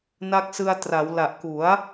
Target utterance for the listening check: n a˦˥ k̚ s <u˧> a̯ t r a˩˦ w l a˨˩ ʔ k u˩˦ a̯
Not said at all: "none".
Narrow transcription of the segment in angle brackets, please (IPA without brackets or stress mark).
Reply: ɯ˧